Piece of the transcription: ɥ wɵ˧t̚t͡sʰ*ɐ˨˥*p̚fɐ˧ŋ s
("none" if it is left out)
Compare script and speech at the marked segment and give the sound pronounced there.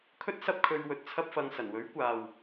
ɐ˥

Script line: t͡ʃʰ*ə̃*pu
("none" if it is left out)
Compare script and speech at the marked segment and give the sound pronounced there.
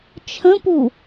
ə̃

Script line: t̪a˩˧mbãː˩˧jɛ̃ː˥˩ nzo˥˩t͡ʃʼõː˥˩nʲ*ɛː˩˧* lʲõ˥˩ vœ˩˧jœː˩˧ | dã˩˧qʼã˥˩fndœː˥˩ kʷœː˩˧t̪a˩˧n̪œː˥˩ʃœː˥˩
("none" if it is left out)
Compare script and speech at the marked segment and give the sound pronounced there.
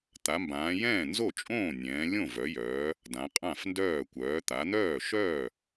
ɛ̃ː˩˧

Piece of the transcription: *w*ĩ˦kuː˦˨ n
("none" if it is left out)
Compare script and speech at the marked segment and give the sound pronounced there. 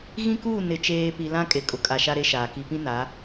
ɣ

